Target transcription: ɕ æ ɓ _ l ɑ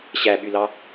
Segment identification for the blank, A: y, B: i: A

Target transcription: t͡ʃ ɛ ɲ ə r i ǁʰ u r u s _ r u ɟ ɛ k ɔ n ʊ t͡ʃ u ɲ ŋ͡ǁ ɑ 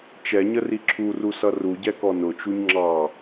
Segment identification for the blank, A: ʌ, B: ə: A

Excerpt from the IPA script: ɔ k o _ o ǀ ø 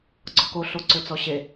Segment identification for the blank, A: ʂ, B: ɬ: B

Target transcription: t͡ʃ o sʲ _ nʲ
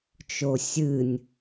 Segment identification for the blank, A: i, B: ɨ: B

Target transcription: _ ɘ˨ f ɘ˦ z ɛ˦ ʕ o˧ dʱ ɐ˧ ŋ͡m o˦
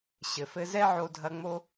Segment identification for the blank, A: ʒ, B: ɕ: B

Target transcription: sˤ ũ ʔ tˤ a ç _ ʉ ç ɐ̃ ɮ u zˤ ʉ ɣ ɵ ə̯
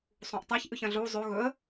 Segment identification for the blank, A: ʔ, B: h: A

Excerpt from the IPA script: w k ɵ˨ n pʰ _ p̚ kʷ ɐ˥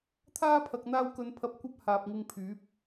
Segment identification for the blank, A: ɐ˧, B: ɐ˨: B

